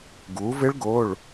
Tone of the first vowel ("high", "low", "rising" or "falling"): rising